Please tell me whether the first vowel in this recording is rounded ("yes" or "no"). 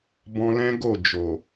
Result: yes